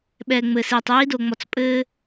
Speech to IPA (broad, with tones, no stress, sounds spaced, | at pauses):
ɓ ɛː˨ ŋ͡m ɘ˨ s iː˨ tˤ j i˦ d o˨ ŋ͡m ɔ˨ t͡s pʼ ɘː˦